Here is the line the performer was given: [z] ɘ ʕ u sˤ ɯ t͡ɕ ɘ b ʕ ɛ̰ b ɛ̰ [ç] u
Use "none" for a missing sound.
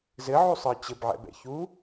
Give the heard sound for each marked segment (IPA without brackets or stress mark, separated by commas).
z, ç